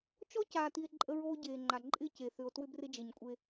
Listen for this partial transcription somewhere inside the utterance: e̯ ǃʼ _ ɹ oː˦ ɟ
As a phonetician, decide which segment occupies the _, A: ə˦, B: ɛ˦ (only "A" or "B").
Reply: A